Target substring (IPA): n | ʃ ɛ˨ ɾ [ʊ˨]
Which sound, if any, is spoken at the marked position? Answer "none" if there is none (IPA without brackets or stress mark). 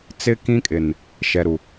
u˨